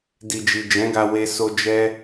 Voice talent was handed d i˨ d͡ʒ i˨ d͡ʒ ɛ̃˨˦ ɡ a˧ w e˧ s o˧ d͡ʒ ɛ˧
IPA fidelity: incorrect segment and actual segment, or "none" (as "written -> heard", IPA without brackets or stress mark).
none